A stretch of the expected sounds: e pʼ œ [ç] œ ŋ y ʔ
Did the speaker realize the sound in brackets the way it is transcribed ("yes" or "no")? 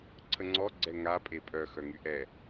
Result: no